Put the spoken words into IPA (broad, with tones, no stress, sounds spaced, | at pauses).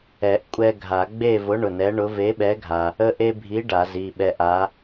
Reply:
ɛ˨˩˦ ʔ kʷʼ ɛ˦ ɡʱ a˨˩˦ ɡ͡b e˦˨ v ʊ˨˥ ɳ ʊ˩˧˩ n ɛ˨˥ ɳ ʊ˨˥ v e˨˥ ɓ ɛ˨˥ ɡʱ a˩ | ə˦ ʔ e˦ bʱ i˨˥ ɖ a˨˩˦ z i˩˧˩ ɓ ɛ˦˨ ʔ a˨˥